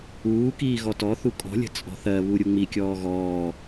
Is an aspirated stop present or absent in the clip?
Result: absent